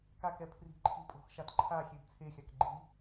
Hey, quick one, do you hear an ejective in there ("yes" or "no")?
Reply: yes